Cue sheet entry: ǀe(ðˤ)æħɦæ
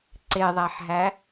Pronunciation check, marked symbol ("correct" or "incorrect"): correct